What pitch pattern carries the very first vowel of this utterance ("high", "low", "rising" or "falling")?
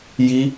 high